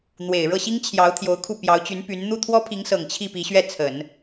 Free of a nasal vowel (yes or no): yes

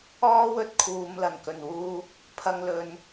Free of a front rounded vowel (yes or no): yes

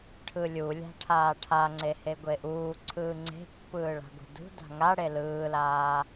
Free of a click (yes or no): no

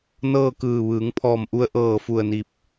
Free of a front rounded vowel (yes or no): yes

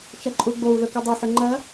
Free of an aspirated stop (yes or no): yes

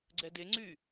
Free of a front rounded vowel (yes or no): no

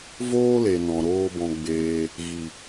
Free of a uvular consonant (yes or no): yes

